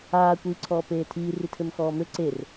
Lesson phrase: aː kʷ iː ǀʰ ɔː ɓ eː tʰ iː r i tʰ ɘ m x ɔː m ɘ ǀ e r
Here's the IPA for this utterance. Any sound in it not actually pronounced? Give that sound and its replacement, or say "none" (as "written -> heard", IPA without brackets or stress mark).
ɓ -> p